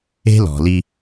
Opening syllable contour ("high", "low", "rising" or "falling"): high